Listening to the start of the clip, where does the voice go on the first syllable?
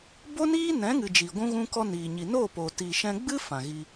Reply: high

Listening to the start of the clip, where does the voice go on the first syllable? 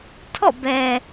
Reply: falling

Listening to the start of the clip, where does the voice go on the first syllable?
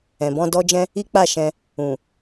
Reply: low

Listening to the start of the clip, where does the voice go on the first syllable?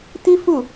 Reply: high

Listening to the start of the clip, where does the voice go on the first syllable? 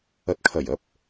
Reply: rising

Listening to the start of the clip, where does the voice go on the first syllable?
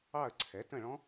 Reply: falling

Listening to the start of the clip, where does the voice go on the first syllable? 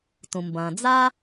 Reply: low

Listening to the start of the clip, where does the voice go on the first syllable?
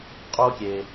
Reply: high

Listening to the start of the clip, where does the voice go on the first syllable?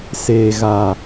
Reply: low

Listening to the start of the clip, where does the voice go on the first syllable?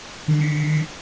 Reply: high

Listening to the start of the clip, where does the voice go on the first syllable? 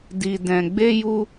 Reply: low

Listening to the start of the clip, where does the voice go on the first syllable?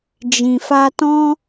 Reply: low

